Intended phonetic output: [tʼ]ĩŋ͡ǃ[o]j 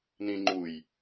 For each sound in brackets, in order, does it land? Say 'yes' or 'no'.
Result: no, no

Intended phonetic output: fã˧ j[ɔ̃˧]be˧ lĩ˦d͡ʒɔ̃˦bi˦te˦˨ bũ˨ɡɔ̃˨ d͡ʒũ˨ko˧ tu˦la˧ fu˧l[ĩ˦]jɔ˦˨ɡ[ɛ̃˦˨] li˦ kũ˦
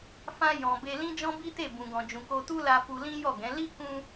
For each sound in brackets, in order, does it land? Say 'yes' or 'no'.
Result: no, yes, no

